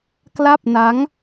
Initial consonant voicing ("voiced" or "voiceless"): voiceless